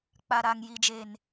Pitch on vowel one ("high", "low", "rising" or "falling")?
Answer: low